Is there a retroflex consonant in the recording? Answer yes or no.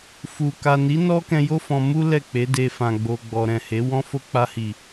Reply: no